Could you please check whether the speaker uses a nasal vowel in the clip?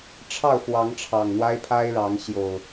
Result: no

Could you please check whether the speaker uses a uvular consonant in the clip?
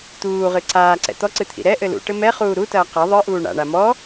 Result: yes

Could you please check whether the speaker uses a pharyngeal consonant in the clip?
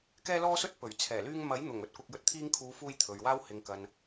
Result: no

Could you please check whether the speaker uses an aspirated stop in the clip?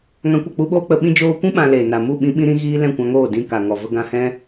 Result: no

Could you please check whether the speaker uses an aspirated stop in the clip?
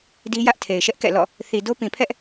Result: yes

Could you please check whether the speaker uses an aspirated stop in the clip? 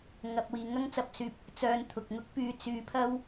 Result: yes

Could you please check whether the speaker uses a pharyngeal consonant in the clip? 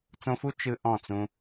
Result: no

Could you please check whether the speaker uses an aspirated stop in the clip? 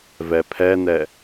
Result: yes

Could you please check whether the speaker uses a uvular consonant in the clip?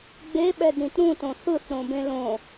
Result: no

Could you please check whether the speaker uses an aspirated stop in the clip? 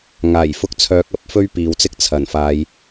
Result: yes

